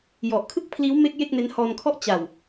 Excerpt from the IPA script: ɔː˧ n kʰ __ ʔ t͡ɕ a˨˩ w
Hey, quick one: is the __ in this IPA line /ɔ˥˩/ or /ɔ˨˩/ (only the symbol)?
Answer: ɔ˥˩